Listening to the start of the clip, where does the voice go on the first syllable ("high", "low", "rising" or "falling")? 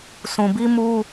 low